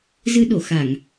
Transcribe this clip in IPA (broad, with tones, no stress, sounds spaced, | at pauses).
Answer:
z ɨ˧ ɗ o˧˩ x a˧˩˨ ŋ